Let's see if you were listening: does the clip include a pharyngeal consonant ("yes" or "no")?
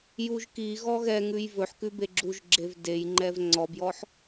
yes